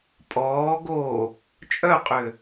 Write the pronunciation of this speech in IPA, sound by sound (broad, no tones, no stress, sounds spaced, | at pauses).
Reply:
pʼ ɔː ɡ o | t͡ʃʼ œ qʼ ʏ